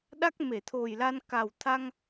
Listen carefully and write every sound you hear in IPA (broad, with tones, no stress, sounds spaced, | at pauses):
ɗ a˦˥ k̚ m e˧˩ t̪ʰ o˨˩ j l a˧ n k a˨˩ w t̪ʰ a˧ ŋ